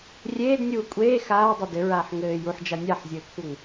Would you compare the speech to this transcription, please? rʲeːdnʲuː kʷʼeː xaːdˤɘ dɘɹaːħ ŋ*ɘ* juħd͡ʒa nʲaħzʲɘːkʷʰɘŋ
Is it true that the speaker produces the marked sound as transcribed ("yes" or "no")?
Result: no